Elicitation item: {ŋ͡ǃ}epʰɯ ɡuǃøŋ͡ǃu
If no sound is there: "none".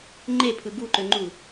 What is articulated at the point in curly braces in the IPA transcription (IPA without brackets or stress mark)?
ŋ͡ǃ